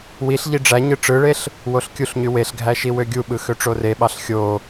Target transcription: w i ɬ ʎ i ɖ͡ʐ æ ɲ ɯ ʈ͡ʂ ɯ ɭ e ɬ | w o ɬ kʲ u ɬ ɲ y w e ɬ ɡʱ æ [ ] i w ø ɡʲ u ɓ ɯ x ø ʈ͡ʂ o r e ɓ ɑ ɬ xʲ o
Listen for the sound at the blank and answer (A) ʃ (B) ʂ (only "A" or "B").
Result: A